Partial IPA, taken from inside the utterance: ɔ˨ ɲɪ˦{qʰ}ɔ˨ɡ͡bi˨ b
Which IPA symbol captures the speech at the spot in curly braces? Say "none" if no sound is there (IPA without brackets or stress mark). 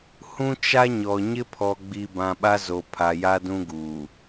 pʰ